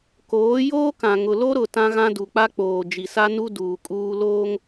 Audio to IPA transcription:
k oː˨˦ j oː˦ k ã˨ ŋ ʊ˨ l o˦ ɾ ʊ˦˨ t ã˦ ɣ ã˦ d u˨ k͡p a˦ k͡p oː˨ d͡ʒ i˨ s a˦ n u˦ d uː˨ kʼ uː˦ l oː˦ ŋ

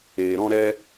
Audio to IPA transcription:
eː˧ ɾ ɔ̃˦ ɾ ɛ˦

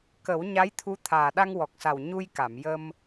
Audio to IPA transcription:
k ə˨˩˦ w ɲ a˧˥ j t̪ʰ u˧˥ t̪ʰ aː˨˩ ɗ a˧ ŋ w ɔ˨˩ k̚ s a˨˩ w ɲ u˧ j k a˨˩˨ m j ə˧ m

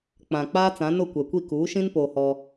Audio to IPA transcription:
k͡p ã˨ k͡p aː˦ t͡s ã˨˦ n ʊ˦˨ kʷ ɛ˨ kʷ i˦˨ k uː˨˦ ʃ ĩ˦ n p oː˦ h ɔ˦

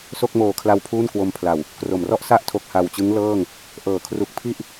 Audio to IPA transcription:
s o˥˩ k̚ m oː˨˩ kʰ l a˧ w pʰ uː˥˩ n k w o˧ m pʰ l a˨˩ w | k r o˨˩ m r ɔ˥˩ ʔ s a˥˩ ʔ tʰ o˨˩ k̚ h a˨˩ w t͡ɕ ɯ˦˥ ŋ l ɤː˥˩ ŋ | ʔ ɤː˩˦ kʰ r u˨˩ k̚ pʰ i˥˩ ʔ

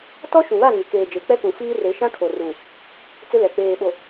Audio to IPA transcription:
t ɔ˦ ʃ ũ˨ β a˦˨ ŋ ɪ˨ k eː˨ d͡ʒ eː˨ k͡p ɛ˦ k ũ˨ f iː˦ r e˨˦ ʃ ã˦ kʰ o˨ r u˨ | t͡s ɪ˦ l ɛ˨ k͡p eː˨ ɓ o˨

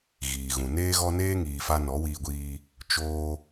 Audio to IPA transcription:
ɣ iː˨ ɣ ũ˨ n eː˦ ɣ ɔ˦ n eː˦ ŋ iː˨ f a˧ n ɔ˨˦ w iː˧ ɡʷ iː˧ | t͡ʃ oː˧

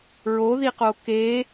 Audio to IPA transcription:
ɹ o ð i q o k e

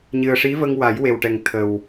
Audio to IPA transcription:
ɲ ɨ˨˩ ə̯ ʂ i˧˥ v ə˧ ŋ w a˨˩˦ j w e˨˩ w ʈ ɛ˨˩ ŋ t̪ʰ ə˨˩ w

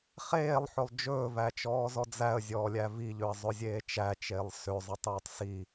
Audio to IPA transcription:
χ eː lˠ ħ ɵ lˠ d͡ʒ ɵː v æ t͡ʃ ɔː z ɔ d͡z æ ə̯ zʲ ɔː lʲ æ v i ʎ ø ə̯ zˤ ɵ zʲ eː t͡ʃ æ t͡ʃ eː lˠ s ø zˤ i tˤ øː tˤ s i

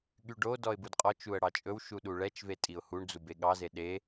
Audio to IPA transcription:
ɠ y ɖ o d ɔ ɪ̯ b u d qʼ ɔ t͡ʃ u ə̯ ɽ ɑ t͡ʃʼ ɵ w ʃ u ɗ u ɭ ɛ t͡ʃ v e tʼ i ʊ̯ h u ɳ d͡z u b e ɠ ɑ z e ɗ e

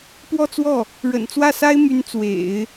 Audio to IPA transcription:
p w ɔ˥˧ t͡s w ɔ˥˩ | ɻ ə̰˨˩ n t͡s w ä˥˩ s a˥ ɪ̯ m y˧˥ n t͡s w ḛ˨˩˦ ɪ̯

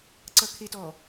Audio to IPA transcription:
ǀ ʌ kʰ e t ɔ

